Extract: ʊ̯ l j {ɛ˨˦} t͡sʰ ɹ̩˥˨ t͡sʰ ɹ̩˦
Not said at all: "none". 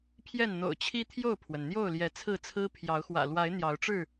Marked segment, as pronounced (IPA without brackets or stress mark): ɛ˨˦